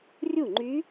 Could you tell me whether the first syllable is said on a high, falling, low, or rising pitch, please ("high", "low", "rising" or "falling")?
falling